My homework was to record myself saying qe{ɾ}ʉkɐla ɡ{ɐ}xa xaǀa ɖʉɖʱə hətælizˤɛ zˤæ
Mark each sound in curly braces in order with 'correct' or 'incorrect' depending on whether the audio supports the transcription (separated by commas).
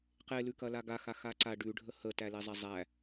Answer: incorrect, incorrect